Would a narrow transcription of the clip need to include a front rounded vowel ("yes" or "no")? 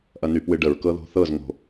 yes